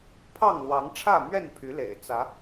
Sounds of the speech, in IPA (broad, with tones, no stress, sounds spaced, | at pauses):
pʰ ɑ˥˨ ŋ l w ɑ˨˦ ŋ ʈ͡ʂʰ ä˥˨ m ɥ ɛ˥˨ n pʰ y˨˦ l ḛ˨˩ ɪ̯ t͡s ä˨˦